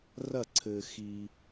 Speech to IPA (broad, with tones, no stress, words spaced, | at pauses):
rɐ˦˨ǀʰɘ˨ xi˨